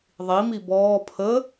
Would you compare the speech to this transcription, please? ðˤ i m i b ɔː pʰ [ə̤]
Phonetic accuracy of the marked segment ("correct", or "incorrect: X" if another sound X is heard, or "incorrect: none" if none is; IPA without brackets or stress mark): incorrect: ə